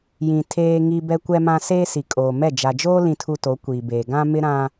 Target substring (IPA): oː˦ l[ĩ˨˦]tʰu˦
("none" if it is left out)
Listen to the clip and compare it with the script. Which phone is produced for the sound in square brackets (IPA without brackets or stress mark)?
ĩ˦